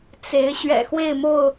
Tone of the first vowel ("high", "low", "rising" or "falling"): rising